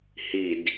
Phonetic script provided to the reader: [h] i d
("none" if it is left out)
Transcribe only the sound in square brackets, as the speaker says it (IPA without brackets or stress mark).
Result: h